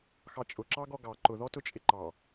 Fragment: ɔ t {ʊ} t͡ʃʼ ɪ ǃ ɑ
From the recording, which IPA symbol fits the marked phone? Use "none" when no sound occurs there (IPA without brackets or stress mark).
ʊ